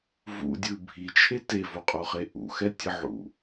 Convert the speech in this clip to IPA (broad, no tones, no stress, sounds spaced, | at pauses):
v ṵ dʲ ɯ bʱ i t͡ʃʰ e t e v o qʼ o χ e ʔ ṵ x ɛ tʲ ɯ ʕ ṵ